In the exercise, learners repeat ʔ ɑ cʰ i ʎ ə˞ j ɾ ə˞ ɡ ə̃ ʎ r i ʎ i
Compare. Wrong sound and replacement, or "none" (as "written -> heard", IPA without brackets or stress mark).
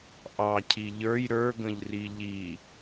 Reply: none